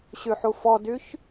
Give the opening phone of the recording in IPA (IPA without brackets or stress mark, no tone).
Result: ɕ